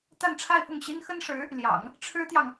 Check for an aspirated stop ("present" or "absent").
present